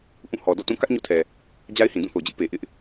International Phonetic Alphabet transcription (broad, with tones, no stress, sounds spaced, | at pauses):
ʔ ũ˦˨ h ɔ˨ d ɔ̰˦˨ t ũ˦˨ k ä˦ ʔ ɲ o̰˦˨ tʰ ɛ˨ | d͡ʑ a˦ ɪ̯ h ĩ˨ d ũ˦˨ θ o˨ d͡ʑ ɪ˦ ʔ p e˨ ʔ ɪ˦ ʔ